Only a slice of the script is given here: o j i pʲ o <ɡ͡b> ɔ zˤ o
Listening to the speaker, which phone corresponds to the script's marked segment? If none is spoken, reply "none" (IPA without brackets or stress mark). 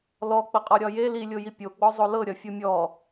ɡ͡b